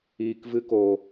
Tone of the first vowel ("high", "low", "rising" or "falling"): low